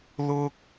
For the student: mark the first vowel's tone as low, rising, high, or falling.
high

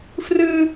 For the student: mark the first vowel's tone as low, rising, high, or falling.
high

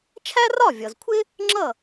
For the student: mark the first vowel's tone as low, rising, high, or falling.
high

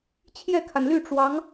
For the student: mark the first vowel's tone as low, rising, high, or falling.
falling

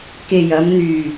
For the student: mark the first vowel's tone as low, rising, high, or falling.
low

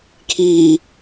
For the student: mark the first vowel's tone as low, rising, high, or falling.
low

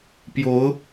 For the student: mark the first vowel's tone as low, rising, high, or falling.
rising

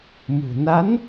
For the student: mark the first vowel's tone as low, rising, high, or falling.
low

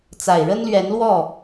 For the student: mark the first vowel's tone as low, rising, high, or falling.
low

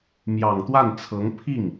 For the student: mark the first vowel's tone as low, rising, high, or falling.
low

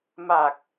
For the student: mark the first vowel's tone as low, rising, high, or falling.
low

